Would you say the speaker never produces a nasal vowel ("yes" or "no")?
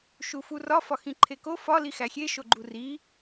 no